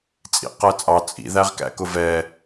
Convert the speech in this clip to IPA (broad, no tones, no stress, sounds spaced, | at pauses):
t͡sʼ ḭ q ɜ t͡sʼ ɑ t͡sʼ ḭ ð æ ʁ k æ̰ k ʊ v ɛ